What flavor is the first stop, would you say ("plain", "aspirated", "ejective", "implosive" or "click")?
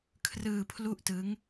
aspirated